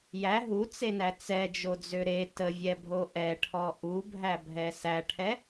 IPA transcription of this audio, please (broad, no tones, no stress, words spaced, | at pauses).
jæ ɦut͡senæ t͡sɛd͡ʒod͡zø ɾe təvʲɛbʱo ʔɛʈʰɔ ʔubʱæbʱɛ sæʈʰɛ